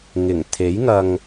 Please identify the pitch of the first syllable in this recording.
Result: low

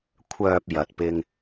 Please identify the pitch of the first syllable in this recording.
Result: low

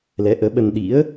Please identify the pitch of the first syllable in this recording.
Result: rising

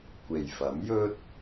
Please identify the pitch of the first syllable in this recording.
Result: low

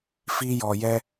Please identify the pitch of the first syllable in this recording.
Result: high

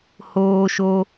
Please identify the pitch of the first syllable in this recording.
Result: high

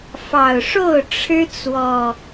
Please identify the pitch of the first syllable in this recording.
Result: low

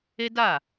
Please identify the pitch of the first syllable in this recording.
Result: high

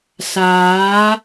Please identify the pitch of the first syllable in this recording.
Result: rising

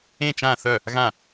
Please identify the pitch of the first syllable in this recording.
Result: falling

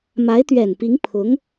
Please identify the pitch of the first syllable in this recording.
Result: rising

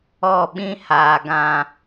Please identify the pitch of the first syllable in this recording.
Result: falling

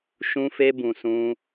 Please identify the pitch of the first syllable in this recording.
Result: high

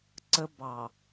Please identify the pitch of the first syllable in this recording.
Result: high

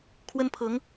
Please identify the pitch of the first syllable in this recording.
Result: high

